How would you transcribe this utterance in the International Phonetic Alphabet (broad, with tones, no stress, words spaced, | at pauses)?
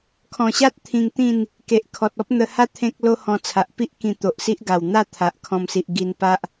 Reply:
kʰɔ̃˨˩ɕa˦t̚ t̪ʰĩ˧ŋt̪ĩ˥˧n | ke˨ʔkʰɔ˨t̚ɔ˦p̚ n̪ə˧ha˦ t̪ʰẽ˦k̚ lo˦hɔ̃˧t͡sʰa˨ʔ pi˦ʔ kĩ˧ t̪o˨ʔsi˦ʔɡa˨˩w n̪a˥˧ t̪ʰa˨ʔkʰɔ̃˧msi˨ʔ ɡi˧n pa˦ʔ